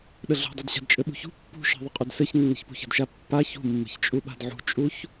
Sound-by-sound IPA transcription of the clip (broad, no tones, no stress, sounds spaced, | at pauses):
ɗ ə ɮ ṳ dˤ ɘ d ɕ a̤ d t͡ʃʼ ɘ ɓ ṳ ç ṳ pː ṳ ʃ e̤ ðˤ ə qʼ ʉ d s ɘ ç nː ə̤ ç p ṳ ç ə̤ d ʃ a pː a ç ṳ mː ə̤ ç t͡ʃʼ u ɓ a̤ d ʕ ṳ t͡ʃʼ u ç